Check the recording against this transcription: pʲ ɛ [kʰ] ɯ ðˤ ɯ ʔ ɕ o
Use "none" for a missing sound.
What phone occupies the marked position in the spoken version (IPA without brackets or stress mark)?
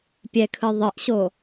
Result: kʰ